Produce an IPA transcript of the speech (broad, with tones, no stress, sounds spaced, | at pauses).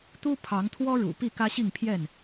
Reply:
t̪ u˦ pʰ ɑ˨˦ ŋ t̪ʰ w ɔ˦ ɻ ṵ˨˩ p i˥˨ k ä˦ ɕ i˥˨ ŋ pʰ j ɛ˥˨ n